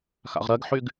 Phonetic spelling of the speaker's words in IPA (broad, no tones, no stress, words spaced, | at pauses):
xa̰ʁɾɜɡħyɡ